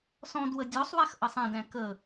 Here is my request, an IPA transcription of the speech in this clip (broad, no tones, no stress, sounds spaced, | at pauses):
s ɔ̃ d w ə dʲ ɔ sˤ w æ x ʔ ʌ sˤ ɛ̃ d æ̃ k ə